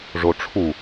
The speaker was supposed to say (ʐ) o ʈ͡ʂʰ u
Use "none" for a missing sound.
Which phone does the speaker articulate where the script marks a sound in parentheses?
ʐ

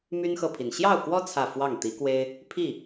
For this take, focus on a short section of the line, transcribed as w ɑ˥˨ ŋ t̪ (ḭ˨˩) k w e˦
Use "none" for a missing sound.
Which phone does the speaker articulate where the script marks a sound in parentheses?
i˨˦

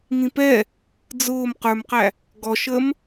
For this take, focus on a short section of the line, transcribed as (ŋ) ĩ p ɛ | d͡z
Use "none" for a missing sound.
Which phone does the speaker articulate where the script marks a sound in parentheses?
ŋ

